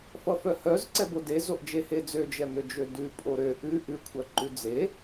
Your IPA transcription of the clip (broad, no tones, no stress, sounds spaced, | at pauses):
f ʌ f œ h œ z ǀ ɛ b o d e z o ʔ d͡ʒ e h e d͡z ø d͡ʒ ɛ m ø d͡ʒ ø d ʉ pʼ o ɾ ø ʔ ʉ ʔ ʉ kʷʰ œ ǃ ʉ d͡z e